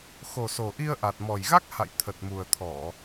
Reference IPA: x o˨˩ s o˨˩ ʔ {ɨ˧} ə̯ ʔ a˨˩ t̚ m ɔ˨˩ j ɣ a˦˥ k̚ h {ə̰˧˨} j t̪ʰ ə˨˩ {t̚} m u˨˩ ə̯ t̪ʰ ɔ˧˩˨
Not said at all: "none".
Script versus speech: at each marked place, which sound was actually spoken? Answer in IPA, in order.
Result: i˧, a̰˧˨, t̚

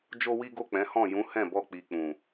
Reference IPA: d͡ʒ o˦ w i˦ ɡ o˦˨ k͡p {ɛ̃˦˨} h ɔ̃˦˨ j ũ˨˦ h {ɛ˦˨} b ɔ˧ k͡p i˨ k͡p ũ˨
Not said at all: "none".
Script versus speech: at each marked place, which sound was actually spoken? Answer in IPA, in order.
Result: ɛ̃˨˦, ɛ̃˦˨

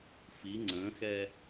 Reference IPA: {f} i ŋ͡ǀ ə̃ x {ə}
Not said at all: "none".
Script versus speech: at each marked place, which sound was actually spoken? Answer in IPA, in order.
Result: f, ɛ

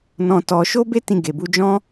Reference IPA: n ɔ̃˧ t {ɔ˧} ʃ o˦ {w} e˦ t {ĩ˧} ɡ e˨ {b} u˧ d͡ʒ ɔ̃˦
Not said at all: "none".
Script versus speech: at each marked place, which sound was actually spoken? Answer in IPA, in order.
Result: ɔ˧, b, ĩ˧, b

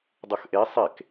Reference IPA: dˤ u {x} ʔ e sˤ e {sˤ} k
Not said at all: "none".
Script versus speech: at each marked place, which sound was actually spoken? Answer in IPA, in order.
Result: x, none

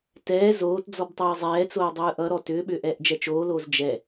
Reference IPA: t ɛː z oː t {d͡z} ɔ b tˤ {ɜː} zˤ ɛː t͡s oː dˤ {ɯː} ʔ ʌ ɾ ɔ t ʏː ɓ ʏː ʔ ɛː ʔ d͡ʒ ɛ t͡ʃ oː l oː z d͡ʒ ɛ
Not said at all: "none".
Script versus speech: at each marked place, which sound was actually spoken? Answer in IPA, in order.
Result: d͡z, ɛː, ɯː

